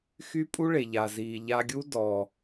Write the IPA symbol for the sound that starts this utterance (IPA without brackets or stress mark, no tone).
x